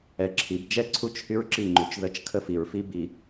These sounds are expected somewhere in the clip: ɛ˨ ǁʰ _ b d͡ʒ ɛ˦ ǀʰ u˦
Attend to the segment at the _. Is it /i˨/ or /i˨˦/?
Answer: i˨˦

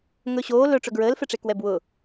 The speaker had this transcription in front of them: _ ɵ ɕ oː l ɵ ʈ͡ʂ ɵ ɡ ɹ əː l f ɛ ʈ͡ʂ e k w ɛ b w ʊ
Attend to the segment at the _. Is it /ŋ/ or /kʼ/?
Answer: ŋ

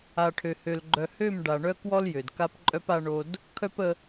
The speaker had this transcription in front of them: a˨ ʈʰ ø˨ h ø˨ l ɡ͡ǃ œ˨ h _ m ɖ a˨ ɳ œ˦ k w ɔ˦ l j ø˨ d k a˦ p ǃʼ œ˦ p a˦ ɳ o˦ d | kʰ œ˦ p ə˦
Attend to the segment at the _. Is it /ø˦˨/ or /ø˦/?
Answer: ø˦˨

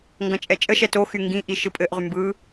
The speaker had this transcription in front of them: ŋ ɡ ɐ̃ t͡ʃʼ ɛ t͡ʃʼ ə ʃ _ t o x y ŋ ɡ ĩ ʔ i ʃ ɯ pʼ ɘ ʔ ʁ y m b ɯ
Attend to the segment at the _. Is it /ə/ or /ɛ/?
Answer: ɛ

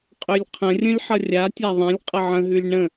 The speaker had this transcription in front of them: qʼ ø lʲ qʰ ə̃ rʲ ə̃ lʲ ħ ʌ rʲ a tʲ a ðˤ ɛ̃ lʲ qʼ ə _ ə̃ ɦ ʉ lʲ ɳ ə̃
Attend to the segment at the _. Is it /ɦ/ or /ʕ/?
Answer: ʕ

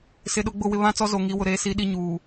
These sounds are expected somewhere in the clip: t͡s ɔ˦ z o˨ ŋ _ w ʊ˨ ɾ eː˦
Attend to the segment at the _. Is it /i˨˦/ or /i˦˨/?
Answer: i˨˦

